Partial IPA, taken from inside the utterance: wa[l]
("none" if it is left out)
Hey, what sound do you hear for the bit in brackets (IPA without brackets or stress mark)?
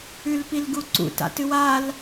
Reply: l